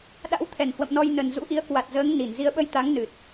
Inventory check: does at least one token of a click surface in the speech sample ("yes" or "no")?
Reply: no